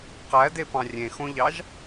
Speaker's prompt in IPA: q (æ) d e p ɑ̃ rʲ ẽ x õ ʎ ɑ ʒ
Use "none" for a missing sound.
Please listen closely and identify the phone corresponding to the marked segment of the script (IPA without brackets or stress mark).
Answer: æ